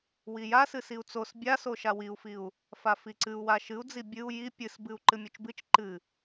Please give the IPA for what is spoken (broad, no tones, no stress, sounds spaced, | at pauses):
w i j a s ɨ s i u̯ t͡s o s bʲ a s o ʃ a w i u̯ f i u̯ | f a f i ǀ ɨ u̯ w a ʃ ɨ u̯ d͡z i bʲ ɨ u̯ j i pʲ ɨ s b ɨ u̯ ǃ ɨ mʲ o t͡ʃ b ɨ t͡ʃ ǃ ɨ